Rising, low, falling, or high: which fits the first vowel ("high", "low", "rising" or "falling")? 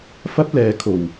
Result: high